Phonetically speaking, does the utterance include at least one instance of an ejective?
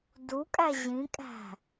yes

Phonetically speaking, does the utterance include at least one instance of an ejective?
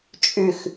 yes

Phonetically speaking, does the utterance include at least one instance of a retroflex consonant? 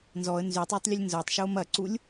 no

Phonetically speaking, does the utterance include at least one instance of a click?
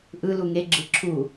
yes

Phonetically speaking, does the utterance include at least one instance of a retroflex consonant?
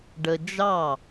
yes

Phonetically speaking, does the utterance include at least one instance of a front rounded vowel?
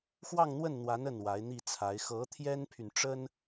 yes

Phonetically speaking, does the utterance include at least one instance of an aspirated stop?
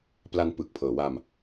yes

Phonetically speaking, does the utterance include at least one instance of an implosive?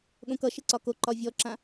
yes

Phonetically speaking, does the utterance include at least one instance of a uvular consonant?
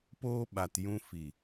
no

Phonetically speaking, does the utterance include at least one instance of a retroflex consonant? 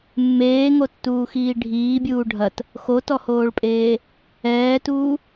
yes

